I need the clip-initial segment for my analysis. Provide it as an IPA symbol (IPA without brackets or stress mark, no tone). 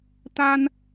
t̪